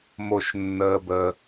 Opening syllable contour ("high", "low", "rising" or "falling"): high